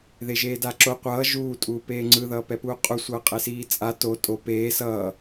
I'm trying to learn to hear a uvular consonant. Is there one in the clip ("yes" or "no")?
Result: yes